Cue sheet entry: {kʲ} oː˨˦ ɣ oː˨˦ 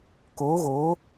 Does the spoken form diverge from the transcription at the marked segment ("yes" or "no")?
yes